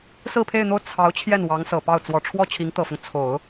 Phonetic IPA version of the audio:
s ɹ̩˥˧ pʰ e˥˧ ɪ̯ n̪ o˥˩ ʊ̯ t͡sʰ ɑ˧˥ ʊ̯ t͡ɕʰ j ɛ˥˩ n w ɑ˧˥ ŋ s ɤ˨˩ p ɑ˥˩ ʊ̯ t͡s w ɔ˨˩ ʈ͡ʂʰ w ɔ˥˩ t͡ɕʰ i˧˥ ŋ t̪ ɤ˨˩ f ʊ˦ ŋ t͡sʰ o˨˩˦ ʊ̯

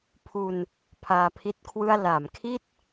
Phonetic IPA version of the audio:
pʰ u˧ n | pʰ aː˧ pʰ i˥˩ t̚ kʰ w ɯ˥˩ a̯ l a˩˦ m kʰ i˥˩ t̚

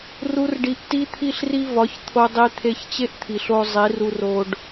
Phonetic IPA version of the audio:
r u˦ r ɖ i˧ ʔ t i˦ t̪ʰ i˦ ɬ r i˦ v ɒ˨˦ ç t̪ʰ o˧ dˤ i˧ t̪ʰ e˧ ç t͡ɕ e˦ ʔ t̪ʰ i˨ ɬ o˧ zˤ i˨˦ r u˧ r o˧ ɖ

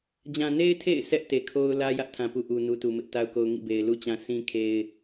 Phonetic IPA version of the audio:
d͡ʑ ã˨ n e˦ ɪ̯ tʰ ḛ˦˨ ɪ̯ s ɛ˦ ʔ t e˨ kʰ o˦ ʊ̯ l ä˦ j ä˦ ʔ tʰ ã˨ p u˨ ʔ u˨ n u˨ t u˨ m ɪ˦ ʔ t a˦ ʊ̯ k o˦ ʊ̯ ŋ ḭ˦˨ b e˨ ɪ̯ l u˦ t͡ɕ ã˦ sʰ ĩ˦ kʰ e˦ ɪ̯

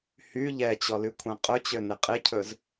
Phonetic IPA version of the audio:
h y ʎ ɛ t͡ɕ ɔ l y kʷʰ æ̃ qʼ ɵ t͡ɕ ø n e qʼ e cʰ ɵ z

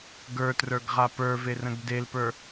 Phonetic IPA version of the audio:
ɡ ə˞ t r ə˞ ɡ ʁ a p ə˞ v e r ə̃ ɡ d e l p ə˞

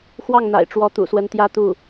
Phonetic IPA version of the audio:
x w ɑ˥˩ ŋ n̪ a̰˨˩ ɪ̯ ʈ͡ʂ w ɔ˧˥ t̪ ṵ˨˩ s w ə˧˥ n t̪ j ä˥ t̪ u˥˩

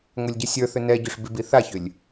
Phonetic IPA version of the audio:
ŋʷ ɛ lʲ ɟ ə sʲ ə˞ θ ʏ n ɛ ɟ ʏ ʂ b i b i θ a ç ʏ lʲ

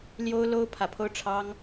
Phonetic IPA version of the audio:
l j o˥ ʊ̯ l o˥ ʊ̯ pʰ ä˧˥ pʰ o˥˩ ʊ̯ ʈ͡ʂʰ ɑ˥ ŋ

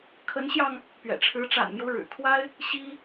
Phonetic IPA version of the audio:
kʰ ə˧˥ n ɕ j ɑ˧ ŋ | p ɥ ɛ̰˨˩ ʈ͡ʂʰ ɻ̩˧˥ ʈ͡ʂ a̰˨˩ n m j o˦ ʊ̯ ɻ ɻ̩˨˩ kʰ w a˥ ɪ̯ | ɕ i˥

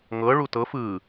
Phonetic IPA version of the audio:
ŋ ɤ ɭ u t ɤ f ɯ

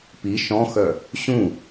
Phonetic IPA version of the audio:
p i ʃ ɔ̃ x œ | ɕ ũ

